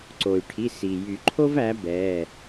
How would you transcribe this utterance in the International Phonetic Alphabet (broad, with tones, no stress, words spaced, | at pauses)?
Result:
ǀo˩y̯ʈʰi˩˧˩ si˩ jy˨˩˦ǃʰo˥v æ˩˥bɛ˩˧˩